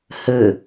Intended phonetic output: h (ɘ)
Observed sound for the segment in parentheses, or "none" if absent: ɘ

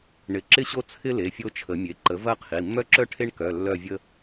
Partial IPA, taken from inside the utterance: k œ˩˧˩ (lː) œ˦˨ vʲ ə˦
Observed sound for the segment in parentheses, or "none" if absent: lː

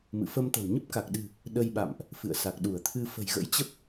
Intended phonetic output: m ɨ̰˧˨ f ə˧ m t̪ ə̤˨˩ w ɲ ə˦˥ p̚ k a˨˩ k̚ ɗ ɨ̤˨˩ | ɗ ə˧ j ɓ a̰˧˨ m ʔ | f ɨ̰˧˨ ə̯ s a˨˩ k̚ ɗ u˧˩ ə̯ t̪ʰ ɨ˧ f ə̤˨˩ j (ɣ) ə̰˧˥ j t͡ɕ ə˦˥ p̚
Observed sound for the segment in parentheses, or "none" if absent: ɣ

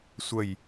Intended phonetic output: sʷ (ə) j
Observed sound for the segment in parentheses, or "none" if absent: ə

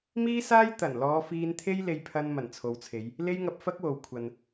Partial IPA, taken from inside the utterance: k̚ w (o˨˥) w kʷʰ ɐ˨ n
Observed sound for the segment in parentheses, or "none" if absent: o˨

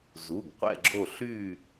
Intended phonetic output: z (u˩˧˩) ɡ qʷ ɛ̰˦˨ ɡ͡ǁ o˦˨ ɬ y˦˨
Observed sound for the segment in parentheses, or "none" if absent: u˩˧˩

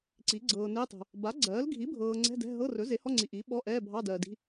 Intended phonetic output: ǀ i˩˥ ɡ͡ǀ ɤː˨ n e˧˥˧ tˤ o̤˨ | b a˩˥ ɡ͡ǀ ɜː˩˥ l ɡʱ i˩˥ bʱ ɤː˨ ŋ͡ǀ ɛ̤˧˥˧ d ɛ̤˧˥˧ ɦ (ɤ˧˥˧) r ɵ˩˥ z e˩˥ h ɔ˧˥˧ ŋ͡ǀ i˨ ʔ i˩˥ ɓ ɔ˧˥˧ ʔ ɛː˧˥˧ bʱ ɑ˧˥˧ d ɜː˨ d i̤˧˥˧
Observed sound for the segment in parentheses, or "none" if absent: ɤ˧˥˧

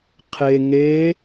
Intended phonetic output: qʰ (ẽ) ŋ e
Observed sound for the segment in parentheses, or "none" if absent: e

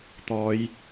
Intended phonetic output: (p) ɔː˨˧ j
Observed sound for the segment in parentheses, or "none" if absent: t̪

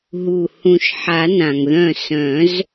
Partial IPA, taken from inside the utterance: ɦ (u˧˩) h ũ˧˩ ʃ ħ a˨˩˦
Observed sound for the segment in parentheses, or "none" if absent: u˧˩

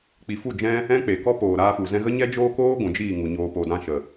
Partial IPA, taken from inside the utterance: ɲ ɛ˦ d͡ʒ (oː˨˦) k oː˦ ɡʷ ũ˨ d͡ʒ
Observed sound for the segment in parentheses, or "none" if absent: oː˦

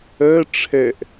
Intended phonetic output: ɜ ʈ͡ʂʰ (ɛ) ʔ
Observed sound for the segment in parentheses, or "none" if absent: ɛ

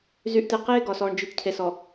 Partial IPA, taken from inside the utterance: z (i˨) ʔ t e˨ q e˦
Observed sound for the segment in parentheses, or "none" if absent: y˨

